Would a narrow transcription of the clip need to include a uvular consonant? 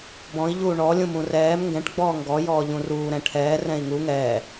no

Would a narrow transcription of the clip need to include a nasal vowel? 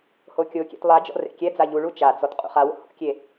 no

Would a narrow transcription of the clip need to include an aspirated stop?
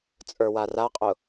no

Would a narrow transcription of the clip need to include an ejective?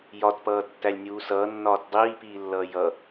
no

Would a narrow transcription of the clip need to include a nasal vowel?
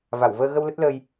no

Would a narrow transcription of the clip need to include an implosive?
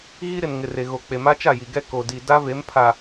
no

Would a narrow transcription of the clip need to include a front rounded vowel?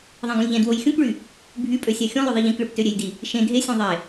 yes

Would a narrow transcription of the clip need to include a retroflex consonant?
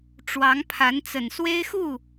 yes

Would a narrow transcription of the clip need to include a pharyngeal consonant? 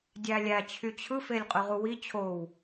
no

